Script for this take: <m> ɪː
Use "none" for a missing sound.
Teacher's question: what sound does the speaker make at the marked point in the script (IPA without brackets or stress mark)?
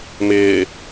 m